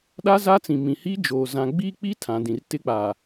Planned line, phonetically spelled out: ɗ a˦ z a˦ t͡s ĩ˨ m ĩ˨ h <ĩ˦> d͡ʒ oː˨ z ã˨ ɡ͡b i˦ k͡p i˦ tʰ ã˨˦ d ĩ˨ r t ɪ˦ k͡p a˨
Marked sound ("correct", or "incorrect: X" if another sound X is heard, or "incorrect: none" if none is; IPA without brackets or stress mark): incorrect: i˦